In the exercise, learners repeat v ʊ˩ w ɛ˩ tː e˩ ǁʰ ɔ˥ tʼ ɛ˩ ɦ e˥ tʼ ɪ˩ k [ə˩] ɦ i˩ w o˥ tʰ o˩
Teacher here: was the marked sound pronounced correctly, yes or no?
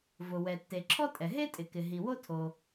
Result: no